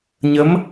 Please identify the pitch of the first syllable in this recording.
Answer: rising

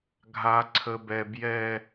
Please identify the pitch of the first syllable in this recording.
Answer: low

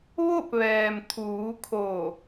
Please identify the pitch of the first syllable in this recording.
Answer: falling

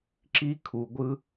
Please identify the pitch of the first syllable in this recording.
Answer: high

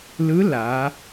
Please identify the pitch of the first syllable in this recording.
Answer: rising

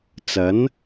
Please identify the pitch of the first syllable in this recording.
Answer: rising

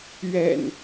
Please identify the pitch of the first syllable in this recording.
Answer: low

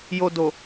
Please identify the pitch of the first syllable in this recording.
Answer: low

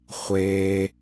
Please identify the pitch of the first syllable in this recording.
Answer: high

